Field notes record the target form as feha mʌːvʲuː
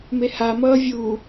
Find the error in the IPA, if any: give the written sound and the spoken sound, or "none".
f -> m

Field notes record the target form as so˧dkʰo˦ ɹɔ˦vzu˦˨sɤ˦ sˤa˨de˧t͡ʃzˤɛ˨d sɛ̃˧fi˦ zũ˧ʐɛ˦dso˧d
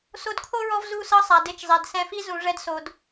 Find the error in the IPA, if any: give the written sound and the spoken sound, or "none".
none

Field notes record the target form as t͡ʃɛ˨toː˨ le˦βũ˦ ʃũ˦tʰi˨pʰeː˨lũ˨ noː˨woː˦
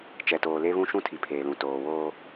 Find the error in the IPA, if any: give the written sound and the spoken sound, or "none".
n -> t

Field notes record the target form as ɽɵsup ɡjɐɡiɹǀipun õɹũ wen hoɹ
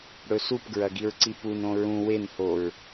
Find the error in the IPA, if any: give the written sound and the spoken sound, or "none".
j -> ɹ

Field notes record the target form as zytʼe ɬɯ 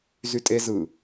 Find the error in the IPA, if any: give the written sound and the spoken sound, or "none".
ɬ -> z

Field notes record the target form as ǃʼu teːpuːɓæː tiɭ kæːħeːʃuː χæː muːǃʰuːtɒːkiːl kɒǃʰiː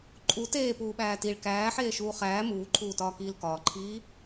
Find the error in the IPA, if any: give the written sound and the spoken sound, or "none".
ɒ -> ɒː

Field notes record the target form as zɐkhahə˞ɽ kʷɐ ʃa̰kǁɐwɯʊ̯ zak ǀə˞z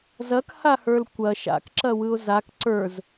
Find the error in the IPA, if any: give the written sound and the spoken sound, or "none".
ɽ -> l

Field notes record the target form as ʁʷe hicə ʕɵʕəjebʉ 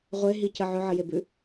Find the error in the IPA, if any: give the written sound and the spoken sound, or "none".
h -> ɦ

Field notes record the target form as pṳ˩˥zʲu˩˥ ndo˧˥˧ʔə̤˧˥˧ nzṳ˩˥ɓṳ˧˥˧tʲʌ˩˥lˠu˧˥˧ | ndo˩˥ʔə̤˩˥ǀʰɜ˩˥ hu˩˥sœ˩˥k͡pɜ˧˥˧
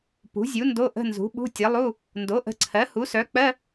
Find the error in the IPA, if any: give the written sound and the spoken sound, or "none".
none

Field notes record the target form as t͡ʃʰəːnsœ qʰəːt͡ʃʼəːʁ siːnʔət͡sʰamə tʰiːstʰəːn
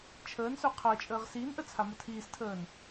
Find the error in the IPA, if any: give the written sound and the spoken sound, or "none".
none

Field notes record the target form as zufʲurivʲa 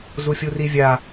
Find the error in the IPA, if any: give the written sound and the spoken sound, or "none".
none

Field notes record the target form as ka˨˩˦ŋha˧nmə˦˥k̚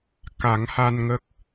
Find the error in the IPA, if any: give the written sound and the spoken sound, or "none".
m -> ŋ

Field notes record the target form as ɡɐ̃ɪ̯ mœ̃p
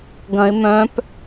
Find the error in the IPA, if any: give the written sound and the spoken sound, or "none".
none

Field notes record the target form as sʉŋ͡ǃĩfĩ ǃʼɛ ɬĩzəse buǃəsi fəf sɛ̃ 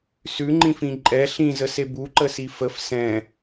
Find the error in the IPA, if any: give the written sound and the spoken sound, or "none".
none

